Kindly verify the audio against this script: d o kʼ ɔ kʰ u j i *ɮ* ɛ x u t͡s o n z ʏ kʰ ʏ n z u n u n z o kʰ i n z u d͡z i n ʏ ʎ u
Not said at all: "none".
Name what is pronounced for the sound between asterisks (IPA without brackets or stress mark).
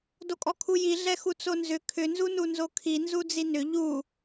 ɮ